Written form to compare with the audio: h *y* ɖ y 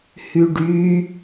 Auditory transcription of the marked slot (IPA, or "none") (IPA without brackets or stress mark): y